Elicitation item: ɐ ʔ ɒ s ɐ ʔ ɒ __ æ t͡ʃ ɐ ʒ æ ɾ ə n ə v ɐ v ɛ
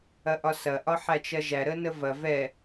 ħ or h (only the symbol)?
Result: ħ